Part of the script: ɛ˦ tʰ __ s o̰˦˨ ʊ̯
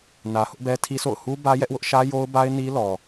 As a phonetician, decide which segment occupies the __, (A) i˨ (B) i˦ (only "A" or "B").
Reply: B